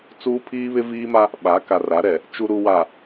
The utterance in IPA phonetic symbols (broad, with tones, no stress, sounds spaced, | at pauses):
t͡s uː˦ pʰ iː˦ β ɪ˦ v iː˦ m a˦ | ɓ a˨˦ k a˨ r a˨˦ ɾ ɛ˨ | t͡ʃ u˨ ɾ u˨ w a˨